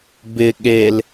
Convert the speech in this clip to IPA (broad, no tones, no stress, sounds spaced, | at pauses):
b ɪ ɠ e l